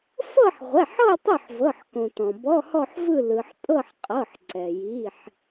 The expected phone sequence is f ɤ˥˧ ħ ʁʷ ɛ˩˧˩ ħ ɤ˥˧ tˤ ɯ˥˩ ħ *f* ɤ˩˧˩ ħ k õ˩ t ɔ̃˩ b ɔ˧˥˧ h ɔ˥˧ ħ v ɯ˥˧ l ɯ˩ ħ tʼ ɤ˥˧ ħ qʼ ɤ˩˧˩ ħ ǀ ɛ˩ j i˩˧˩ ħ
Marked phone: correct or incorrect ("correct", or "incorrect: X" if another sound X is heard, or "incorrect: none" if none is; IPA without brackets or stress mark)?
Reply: incorrect: v